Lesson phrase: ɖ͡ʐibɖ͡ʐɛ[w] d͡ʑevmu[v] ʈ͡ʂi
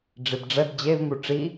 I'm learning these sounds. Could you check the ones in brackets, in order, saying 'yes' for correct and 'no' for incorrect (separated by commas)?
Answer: no, no